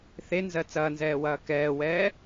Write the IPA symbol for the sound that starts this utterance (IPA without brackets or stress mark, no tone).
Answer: θ